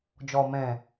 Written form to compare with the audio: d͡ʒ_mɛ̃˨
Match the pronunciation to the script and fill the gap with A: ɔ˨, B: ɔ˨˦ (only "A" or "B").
A